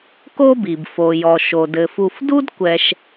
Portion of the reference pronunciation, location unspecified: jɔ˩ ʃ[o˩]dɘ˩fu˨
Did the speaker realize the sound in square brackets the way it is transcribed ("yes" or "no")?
yes